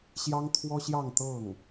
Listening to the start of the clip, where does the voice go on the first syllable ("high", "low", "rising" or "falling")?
high